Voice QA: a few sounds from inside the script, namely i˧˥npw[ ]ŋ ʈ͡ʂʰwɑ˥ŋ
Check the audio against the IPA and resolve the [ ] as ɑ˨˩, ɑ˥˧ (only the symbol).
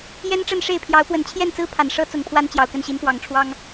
ɑ˨˩